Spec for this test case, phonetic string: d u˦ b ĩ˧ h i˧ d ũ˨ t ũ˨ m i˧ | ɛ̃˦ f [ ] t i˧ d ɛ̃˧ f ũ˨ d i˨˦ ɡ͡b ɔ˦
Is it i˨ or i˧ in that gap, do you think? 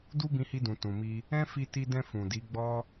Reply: i˧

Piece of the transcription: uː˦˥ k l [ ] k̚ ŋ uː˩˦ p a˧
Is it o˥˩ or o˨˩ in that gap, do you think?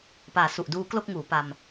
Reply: o˥˩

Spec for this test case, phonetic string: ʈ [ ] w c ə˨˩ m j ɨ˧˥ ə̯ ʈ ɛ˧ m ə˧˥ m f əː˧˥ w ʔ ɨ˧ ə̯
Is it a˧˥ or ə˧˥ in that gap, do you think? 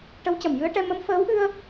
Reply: ə˧˥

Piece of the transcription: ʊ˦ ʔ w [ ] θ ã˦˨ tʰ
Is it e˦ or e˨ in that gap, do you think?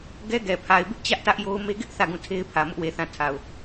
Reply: e˨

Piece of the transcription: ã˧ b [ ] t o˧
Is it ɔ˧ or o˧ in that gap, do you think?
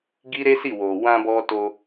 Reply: ɔ˧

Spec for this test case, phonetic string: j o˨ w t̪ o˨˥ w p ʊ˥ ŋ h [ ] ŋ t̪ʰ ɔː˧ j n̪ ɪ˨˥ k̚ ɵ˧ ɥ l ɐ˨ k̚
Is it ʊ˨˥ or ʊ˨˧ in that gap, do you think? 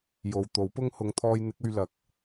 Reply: ʊ˨˧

